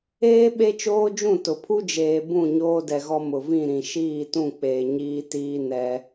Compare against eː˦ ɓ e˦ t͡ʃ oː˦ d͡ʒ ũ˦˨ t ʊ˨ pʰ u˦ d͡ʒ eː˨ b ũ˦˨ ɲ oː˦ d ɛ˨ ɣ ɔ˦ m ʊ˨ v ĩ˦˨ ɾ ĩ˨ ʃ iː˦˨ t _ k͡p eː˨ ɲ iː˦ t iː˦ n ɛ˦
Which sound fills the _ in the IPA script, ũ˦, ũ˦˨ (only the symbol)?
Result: ũ˦˨